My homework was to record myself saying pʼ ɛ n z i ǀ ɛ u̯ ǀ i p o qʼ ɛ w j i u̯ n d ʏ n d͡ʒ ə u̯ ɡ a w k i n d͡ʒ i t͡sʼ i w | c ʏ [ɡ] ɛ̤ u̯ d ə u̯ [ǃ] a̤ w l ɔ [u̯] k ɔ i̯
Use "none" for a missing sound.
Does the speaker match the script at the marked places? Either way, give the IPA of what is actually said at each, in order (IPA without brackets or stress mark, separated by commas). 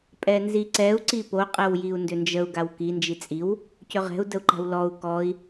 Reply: ʁ, ǃ, u̯